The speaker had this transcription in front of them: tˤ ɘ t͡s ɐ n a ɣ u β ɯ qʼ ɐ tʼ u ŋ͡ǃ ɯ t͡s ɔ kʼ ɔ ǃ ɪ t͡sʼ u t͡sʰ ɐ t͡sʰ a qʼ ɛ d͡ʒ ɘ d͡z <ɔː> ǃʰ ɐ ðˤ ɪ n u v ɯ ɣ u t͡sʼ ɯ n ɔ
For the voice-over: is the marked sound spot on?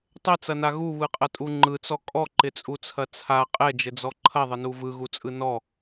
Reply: no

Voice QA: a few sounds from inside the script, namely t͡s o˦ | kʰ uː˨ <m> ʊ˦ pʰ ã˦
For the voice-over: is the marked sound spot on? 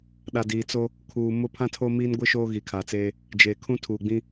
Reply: yes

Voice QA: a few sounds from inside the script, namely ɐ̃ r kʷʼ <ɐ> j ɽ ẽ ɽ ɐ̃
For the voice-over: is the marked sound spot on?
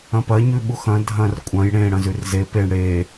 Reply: no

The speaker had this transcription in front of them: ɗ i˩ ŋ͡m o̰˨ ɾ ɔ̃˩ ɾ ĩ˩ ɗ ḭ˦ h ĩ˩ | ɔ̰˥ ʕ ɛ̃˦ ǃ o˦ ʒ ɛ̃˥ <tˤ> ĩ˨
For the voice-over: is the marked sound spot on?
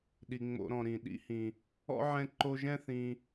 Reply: no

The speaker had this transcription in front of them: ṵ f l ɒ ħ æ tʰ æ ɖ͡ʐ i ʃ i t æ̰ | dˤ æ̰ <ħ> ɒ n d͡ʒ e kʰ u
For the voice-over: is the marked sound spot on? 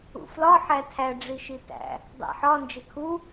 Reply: yes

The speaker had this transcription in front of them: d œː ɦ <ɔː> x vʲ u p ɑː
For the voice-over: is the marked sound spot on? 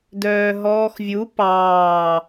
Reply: yes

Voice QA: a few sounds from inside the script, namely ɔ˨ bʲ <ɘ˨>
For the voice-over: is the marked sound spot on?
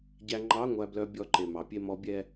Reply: no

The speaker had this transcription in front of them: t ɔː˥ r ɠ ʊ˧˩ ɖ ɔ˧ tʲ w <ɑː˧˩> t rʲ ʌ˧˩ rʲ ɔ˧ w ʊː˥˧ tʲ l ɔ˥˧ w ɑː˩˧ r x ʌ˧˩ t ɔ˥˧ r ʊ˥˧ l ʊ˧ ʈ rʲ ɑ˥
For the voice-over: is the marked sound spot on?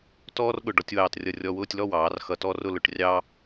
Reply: yes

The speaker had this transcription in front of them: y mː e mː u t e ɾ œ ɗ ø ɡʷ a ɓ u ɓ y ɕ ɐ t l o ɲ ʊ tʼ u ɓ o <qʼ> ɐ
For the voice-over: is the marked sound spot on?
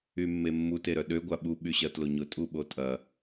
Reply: no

